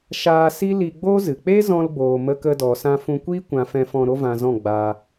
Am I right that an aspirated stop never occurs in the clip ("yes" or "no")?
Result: yes